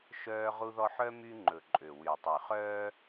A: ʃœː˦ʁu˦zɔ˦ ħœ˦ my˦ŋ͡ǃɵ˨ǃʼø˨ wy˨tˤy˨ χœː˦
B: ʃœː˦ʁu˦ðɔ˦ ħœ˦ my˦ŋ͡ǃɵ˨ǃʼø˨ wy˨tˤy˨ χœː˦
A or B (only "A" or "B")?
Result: B